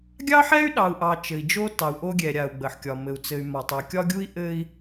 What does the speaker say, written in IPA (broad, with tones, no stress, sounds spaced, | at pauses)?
ɡʲ ɑ˦ ħ ɛ˦ y̯ ɗ ɑ˨ u̯ ʔ ɑ˨ t͡ʃ ɘ˨ i̯ d͡ʒ o˦ t ɑ˨ u̯ ʔ o˦ ɡʲ ɛ˨ ɾʲ a˨ u̯ ɡ͡b ə˨ ħ kʲ ɒ˨ m ɘ˨ u̯ t͡s ɘ˨ y̯ m ɒ˨ tˤ u˨ kʲ ɒ˦ ɡʲ u˦ i̯ ʔ ɘ˦ i̯